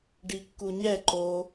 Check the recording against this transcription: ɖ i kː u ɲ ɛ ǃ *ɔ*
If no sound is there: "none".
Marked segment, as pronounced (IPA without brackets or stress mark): o